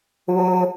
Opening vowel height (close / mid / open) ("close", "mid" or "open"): mid